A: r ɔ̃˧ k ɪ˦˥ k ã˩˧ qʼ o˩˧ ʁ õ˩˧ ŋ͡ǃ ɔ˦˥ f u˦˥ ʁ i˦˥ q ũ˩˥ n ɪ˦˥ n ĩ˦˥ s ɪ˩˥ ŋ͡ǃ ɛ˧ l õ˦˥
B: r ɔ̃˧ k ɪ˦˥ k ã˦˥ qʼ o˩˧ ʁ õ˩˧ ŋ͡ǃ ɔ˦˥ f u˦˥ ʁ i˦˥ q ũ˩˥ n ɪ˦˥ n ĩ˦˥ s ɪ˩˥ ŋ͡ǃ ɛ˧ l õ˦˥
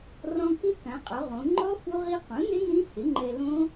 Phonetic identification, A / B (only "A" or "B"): A